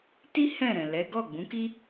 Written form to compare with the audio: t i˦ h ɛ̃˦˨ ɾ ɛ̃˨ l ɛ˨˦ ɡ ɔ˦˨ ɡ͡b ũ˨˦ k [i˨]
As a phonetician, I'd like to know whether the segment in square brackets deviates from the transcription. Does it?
yes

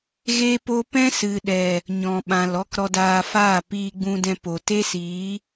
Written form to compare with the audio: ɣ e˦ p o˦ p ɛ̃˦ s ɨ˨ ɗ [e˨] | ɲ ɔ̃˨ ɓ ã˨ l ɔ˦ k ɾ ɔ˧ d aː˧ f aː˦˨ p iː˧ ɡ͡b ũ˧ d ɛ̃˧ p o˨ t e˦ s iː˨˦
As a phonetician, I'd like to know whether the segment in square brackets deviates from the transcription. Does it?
yes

